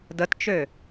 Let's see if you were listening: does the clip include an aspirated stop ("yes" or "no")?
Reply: no